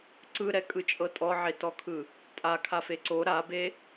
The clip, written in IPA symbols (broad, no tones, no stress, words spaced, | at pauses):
ǀɯɾɛkʼɯt͡ʃʼɤ tʼɔʕetɔkʰɯ | tʼakʰafe ǀo ɾabe